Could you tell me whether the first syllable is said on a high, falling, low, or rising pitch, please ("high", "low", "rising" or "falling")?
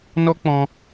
high